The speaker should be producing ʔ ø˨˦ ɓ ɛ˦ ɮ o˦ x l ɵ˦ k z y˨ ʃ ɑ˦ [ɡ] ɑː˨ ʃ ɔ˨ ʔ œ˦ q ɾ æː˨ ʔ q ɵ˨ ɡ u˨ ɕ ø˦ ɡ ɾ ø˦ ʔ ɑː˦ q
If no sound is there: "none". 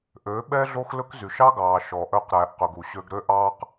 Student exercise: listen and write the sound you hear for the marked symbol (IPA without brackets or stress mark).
ɡ